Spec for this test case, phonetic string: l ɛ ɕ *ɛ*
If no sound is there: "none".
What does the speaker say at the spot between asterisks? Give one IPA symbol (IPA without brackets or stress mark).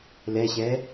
ɛ